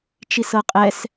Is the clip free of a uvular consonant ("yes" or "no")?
no